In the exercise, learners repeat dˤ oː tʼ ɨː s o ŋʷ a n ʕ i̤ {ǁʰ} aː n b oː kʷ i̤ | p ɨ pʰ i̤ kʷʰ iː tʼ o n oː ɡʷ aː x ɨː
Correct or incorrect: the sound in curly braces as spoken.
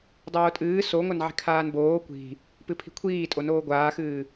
incorrect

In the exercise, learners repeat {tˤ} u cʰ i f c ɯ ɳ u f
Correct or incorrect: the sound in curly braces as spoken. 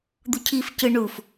incorrect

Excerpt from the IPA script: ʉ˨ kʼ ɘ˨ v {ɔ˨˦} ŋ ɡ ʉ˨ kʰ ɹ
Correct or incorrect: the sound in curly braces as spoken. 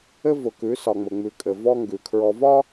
incorrect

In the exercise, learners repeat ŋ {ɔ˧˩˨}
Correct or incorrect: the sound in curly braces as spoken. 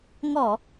correct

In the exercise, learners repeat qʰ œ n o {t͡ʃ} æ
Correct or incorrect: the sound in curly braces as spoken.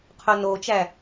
correct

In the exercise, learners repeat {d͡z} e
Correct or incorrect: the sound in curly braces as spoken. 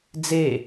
correct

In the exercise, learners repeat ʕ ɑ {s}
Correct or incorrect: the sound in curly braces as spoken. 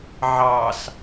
correct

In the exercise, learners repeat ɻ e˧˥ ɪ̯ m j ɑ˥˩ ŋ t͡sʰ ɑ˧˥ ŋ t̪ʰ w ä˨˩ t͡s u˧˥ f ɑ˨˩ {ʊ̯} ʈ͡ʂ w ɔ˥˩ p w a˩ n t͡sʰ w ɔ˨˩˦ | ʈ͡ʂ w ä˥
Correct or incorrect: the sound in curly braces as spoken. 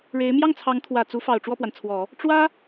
correct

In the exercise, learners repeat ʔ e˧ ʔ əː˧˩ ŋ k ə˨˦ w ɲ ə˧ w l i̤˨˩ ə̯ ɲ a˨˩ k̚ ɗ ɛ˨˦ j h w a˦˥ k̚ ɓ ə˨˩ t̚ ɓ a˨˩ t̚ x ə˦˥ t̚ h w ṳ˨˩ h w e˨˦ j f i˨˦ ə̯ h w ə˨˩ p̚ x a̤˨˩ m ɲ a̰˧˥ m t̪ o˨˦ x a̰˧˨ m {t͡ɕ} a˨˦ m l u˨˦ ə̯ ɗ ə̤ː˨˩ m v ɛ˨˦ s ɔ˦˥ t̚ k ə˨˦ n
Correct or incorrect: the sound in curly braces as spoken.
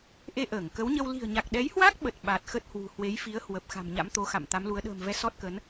incorrect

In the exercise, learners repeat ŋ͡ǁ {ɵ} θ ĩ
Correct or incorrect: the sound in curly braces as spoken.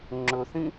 correct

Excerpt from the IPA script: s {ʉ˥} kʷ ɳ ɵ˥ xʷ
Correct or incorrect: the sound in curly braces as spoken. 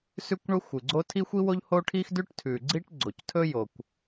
correct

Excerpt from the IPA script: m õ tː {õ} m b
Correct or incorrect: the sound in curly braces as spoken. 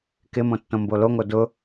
correct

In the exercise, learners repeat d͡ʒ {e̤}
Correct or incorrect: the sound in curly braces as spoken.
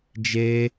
incorrect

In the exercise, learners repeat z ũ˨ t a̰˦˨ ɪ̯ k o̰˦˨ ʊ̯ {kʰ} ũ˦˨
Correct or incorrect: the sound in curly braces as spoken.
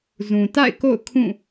correct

